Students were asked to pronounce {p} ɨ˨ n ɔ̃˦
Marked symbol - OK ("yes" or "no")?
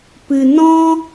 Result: yes